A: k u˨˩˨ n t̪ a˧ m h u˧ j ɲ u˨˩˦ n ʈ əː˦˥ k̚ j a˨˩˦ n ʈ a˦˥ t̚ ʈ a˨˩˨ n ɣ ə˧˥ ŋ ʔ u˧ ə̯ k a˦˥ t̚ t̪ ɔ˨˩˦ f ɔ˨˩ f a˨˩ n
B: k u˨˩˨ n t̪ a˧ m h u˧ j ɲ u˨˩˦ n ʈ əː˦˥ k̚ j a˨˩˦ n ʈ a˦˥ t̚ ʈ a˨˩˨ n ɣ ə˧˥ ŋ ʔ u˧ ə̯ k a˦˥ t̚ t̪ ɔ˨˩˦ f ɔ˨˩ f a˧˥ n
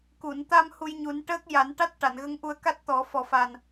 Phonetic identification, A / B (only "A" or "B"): A